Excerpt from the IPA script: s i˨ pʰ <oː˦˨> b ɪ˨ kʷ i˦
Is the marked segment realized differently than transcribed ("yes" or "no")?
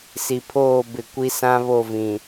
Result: no